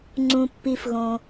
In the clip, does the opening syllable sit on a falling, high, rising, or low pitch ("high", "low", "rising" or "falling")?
low